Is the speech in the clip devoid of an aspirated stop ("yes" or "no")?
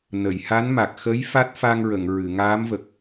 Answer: yes